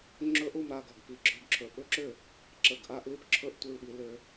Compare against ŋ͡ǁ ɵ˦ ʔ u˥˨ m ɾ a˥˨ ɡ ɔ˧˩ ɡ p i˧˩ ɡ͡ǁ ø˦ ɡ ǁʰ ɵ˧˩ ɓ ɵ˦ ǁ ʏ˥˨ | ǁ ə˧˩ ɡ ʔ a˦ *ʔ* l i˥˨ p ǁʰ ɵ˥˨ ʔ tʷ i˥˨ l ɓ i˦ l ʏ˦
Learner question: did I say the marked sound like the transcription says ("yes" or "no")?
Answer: yes